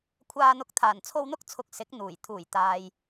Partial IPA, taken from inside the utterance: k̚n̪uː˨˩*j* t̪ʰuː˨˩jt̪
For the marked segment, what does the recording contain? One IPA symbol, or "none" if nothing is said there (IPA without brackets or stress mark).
j